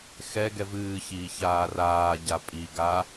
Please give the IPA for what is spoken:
xɛ ɡɛvɨː çiːçaːraː ɟapʼi ɡa

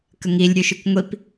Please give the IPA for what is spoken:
kəŋilʲ ɾʲʉʃʉkʷŋʷip

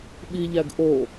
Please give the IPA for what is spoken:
ɓiʎæɡ ʔo

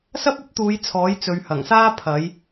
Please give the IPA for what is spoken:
sɐ˥p̚ɐ˥p̚t̪uː˨˧j t͡sʰɔː˨˥jt͡sɵ˨˧ɥhɐ˨˩ŋsaː˥ pʰɐ˨˧j

